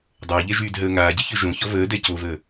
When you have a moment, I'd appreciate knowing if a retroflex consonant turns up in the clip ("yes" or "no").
no